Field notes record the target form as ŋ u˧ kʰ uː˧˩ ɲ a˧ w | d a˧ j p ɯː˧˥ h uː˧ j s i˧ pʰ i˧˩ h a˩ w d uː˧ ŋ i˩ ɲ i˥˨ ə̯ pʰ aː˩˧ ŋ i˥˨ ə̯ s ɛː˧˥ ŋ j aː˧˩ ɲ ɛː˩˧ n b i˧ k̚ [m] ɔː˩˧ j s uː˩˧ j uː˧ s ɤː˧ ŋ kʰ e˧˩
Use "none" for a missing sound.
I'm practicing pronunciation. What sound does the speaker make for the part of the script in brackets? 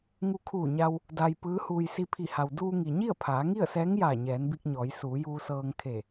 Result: ɲ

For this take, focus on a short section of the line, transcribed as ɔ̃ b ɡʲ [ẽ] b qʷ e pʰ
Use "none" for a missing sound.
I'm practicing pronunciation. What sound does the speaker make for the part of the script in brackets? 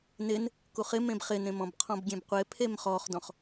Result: ẽ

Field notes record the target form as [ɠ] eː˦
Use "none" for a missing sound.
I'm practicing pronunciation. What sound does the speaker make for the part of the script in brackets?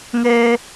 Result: ŋ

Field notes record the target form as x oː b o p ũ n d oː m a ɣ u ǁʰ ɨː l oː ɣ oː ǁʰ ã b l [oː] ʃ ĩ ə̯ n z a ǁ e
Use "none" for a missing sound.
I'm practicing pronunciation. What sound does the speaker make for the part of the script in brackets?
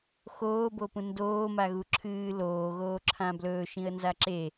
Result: ɵː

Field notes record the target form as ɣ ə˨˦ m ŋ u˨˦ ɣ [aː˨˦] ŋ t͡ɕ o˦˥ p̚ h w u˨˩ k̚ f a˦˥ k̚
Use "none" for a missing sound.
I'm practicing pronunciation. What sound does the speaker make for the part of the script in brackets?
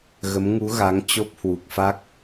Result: a˨˦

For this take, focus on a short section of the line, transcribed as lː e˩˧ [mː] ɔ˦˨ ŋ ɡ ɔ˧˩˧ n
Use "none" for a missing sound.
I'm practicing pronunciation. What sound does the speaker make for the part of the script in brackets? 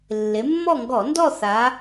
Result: mː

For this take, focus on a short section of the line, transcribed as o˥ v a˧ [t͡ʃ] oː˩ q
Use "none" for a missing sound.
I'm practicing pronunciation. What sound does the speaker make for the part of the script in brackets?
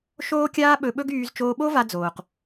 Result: d͡z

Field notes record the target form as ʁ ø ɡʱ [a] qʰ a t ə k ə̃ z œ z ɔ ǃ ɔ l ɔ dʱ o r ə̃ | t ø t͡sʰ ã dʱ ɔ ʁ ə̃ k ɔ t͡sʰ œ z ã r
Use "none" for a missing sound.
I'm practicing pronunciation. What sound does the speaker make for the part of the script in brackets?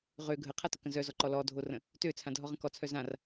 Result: ə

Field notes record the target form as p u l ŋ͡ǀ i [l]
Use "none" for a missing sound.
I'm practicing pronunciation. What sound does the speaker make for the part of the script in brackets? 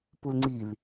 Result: l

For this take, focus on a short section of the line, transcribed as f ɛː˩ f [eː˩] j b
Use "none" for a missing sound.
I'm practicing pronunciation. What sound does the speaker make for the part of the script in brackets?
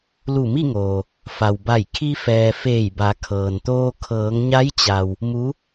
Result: eː˧˩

